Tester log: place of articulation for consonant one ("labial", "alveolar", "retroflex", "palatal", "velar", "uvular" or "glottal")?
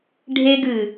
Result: retroflex